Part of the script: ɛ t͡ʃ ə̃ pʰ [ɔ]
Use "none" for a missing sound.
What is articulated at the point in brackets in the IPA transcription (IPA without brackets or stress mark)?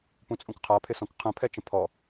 ɔ